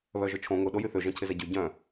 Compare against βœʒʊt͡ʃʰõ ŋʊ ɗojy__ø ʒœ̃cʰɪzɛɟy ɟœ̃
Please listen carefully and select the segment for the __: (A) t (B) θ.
B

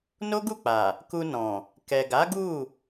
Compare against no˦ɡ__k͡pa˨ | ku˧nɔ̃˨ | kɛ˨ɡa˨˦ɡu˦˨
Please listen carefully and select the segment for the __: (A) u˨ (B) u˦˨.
B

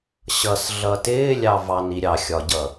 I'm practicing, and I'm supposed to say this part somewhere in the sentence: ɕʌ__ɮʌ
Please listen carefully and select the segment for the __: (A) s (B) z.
A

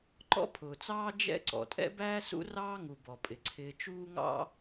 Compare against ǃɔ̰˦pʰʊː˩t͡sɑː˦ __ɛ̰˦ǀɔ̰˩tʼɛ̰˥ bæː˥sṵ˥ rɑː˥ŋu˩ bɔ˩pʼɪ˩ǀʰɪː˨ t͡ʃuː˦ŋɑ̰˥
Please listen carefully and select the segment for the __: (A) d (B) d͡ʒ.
B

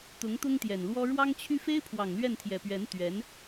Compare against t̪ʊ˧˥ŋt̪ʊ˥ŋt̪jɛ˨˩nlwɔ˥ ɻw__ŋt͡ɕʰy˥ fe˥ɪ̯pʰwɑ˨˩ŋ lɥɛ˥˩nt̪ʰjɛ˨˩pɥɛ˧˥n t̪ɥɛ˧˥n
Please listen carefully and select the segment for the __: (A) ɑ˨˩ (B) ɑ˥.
B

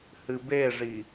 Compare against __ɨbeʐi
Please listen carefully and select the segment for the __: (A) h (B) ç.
A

